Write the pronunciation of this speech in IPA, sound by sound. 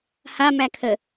h a m æ kʰ ə

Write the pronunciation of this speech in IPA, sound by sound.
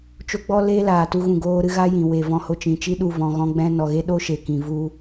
t͡ʃ o˦ ɡ͡b ɔ˦ l eː˦ l aː˨ t u˧ ɣ ũ˨ ɡ oː˧ ɾ ɨ˧ ɣ a˦ j ĩ˨ w e˨ v ɔ̃˧ h o˧ t͡ʃ ĩ˨ t͡ʃ i˦ ɗ u˧ v ɔ̃˧ ɣ ɔ̃˦ ɡ͡b ɛ̃˦ n ɔ˨ ɣ e˦ ɗ o˦ ʃ e˨ k ĩ˨ v u˧

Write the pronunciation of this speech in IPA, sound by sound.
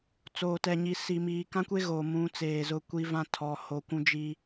t͡s oː˨ t ɛ˨ ɲ i˨ s i˨ m iː˨ k ã˦ kʷ e˦ ɣ o˨ m ũ˨˦ t͡s eː˨ z ʊ˦˨ kʷ i˦ v ã˦ tʰ ɔ˨ h o˨ kʷ ũ˦ d͡ʒ i˦

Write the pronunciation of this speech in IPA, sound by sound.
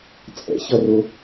t͡sʼ ɛ̰ ç ʌ r ʊ

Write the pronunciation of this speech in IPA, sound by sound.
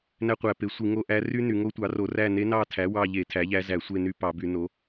n æ˥ qʷ æ˧˩˧ p e˩˥ sʷ i˧˩˧ ŋ o˦˨ ʔ æ˧˥ r y˥ n y˧˩˧ ŋ o˧˥ tʷ ɑ˩˥ r o˧˩˧ r æ˦˨ n e˧˥ n ɑ˦˨ tʰ æ˩˥ w ɑ˦˨ ʎ e˧˩˧ tʰ æ˩˥ ʎ æ˧˥ z æ˧˩˧ sʷ e˦˨ n y˦˨ p ɑ˧˩˧ b y˧˩˧ n o˩˥

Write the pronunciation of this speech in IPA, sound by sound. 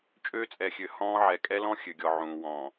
t͡ʃʼ øː˦ t͡sʼ ɛ˨ xʲ ø˨ h ɔ̃ː˦ ʕ ɛ˨ kʼ ɛ˦ l ɔ̃˦ xʲ ø˨ ɡʲ ɔ˨ ʕ ũː˨ w ɔ̃ː˨

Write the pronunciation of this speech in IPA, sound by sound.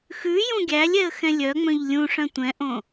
x ʉ j ũ ɡʲ æ lʲ ɛ ə̯ x ɛ̃ lʲ œ ŋ͡m œ̃ ʎ lʲ ũ ʂ œ̃ tʷ ɛ̃ ʔ õ

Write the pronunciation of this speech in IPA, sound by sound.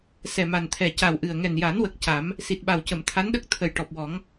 s ɛ˨˩ m a˨˩ n t̪ʰ ɛ˨˩ c a˨˩ w ʔ ɨ˨˩ ə̯ ŋ ɛ˨˩ n j a˨˩˦ n w ə˨˩ k̚ c a˨˩˦ m | s i˨˩ t̚ ɓ a˨˩ w c ə˨˩˨ m t̪ʰ a˧˥ n ɗ ə˦˥ k̚ t̪ʰ ə˨˩ j ʈ ɔ˨˩ p̚ w ɔ˨˩˦ ŋ

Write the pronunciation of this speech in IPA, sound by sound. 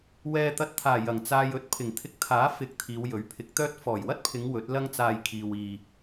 w ɛː˧ t̪ ɐ˧ t̚ t̪ʰ aː˨˩ j ɐ˨˩ ŋ t͡s aː˧ j ɵ˧ t̚ pʰ ɪ˨˩ ŋ t̪ʰ ɪ˧ k̚ t̪ʰ aː˨˥ f ɪ˨˥ k̚ t̪ʰ iː˨˧ w j ɵ˨˥ ɥ pʰ ɪ˨˥ k̚ t̪ œː˥ t̚ f ɔː˨˩ j w ɐ˥ t̚ pʰ ɪ˨˧ ŋ w ɵ˨˥ t̚ l ɐ˥ ŋ t͡s aː˧ j kʰ iː˨ w iː˨

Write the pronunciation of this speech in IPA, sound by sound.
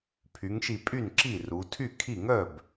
pʰ y˩˧ ŋ ʃ i˧˩ pʼ y˥˩ n ǁ i˥˩ r u˩˧ tʰ y˥˩ kʰ i˥˩ ŋ œ˥˩ b

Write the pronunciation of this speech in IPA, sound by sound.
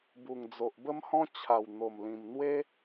b u˨˩ ŋ d͡z o˨ ʔ b ə˦ m h ɔ̃˦ t͡ɕʰ a˨˩ w n̪ o˨˩ m l ĩ˨˩ m n̪ w e˦

